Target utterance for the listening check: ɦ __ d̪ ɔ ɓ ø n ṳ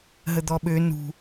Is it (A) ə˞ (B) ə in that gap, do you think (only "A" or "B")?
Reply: B